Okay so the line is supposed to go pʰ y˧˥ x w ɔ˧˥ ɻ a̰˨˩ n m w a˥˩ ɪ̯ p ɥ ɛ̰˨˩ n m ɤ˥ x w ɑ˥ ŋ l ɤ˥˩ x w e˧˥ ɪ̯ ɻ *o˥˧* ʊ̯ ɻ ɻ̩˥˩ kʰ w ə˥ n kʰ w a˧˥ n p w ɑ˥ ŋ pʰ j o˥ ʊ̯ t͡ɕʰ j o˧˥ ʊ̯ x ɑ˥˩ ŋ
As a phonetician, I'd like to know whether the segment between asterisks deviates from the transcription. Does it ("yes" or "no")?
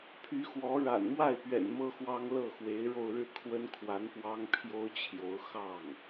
no